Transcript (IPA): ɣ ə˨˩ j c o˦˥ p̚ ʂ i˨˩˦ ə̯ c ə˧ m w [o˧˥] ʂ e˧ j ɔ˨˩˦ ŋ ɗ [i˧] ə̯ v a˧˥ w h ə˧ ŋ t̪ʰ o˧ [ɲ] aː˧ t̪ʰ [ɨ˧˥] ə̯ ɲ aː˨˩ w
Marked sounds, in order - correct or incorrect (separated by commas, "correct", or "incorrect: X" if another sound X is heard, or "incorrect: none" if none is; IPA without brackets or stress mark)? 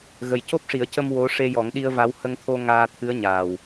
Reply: correct, correct, incorrect: ŋ, correct